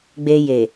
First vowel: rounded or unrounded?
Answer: unrounded